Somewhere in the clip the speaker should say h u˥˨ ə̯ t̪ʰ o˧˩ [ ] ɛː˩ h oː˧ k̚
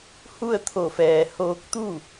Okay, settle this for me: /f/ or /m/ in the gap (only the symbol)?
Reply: f